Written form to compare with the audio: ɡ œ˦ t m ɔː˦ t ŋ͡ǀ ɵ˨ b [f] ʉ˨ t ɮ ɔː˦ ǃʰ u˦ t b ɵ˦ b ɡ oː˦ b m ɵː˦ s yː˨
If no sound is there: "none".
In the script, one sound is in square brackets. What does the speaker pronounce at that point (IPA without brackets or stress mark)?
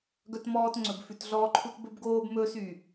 f